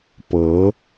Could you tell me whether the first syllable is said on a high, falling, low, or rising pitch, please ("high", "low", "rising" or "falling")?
rising